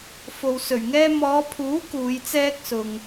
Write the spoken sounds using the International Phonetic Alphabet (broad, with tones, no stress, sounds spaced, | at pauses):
f o˨ w s ɵ˨˩ ɥ ŋ ɛː˥ m ɔː˨˧ pʰ uː˨˥ k uː˨˧ j t͡s ɛː˥ k̚ s ʊ˨ ŋ